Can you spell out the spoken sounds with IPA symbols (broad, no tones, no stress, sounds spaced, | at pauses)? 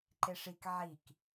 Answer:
ǃ e ʂ i k ʕ i k